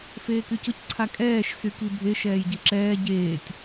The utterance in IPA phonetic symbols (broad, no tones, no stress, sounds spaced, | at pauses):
f eː k y c ʊ c ǀʰ a kʼ ɛː ʃ s y k i bʱ e ʃ ɛː j ɟ i ǁ ɛː ɟ eː tʲ